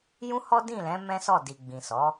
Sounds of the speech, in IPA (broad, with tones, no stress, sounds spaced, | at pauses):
j ũ˦ h ɔ˦ d ĩ˦˨ l ɛ̃˨˦ m ɛ̃˦ s ɔ˦˨ d i˨ ɡ͡b ĩ˨ s ɔ˨˦